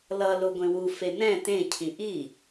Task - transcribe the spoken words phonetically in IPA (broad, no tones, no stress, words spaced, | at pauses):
lʌ loɡʷẽwu fenɛ̃ tẽ cʰĩʔi